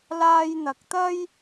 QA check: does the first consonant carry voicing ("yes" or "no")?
yes